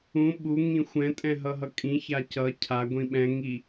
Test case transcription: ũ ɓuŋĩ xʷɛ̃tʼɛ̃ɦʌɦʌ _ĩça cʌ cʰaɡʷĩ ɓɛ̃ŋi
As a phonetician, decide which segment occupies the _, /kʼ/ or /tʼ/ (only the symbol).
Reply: kʼ